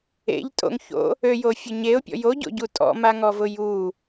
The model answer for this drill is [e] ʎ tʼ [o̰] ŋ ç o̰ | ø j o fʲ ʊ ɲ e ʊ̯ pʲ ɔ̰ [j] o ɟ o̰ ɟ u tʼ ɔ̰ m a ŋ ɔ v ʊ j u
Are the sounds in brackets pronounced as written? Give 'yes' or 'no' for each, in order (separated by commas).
no, yes, yes